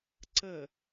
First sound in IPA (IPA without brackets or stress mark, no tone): ǀ